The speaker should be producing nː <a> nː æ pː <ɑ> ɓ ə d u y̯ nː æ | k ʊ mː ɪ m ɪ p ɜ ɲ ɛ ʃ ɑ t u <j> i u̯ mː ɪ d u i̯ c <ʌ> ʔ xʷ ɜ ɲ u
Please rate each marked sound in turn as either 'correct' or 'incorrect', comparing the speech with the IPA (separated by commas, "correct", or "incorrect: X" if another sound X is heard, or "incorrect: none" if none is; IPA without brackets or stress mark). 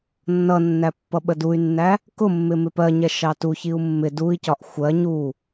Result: incorrect: ʌ, incorrect: ʌ, incorrect: ç, incorrect: ɒ